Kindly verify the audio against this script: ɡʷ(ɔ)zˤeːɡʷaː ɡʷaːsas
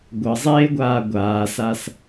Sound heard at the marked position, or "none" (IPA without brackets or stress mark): ʌ